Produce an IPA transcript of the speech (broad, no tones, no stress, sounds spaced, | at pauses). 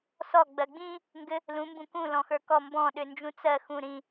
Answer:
s ɔ ɡ͡b ɜ ɡ͡b ĩ | ŋ ɡ ɘ | l ũ m b ũ k ũ l ɔ̃ x ə˞ k ɔ m b ɔ̃ ɗ ʏ n d͡ʒ ũ t͡s ɜ x ũ ɾ ĩ